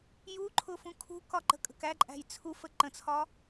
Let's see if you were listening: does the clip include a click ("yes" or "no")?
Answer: yes